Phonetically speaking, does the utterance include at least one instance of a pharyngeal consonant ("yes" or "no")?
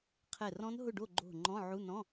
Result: yes